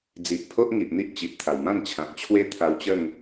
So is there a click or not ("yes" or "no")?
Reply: no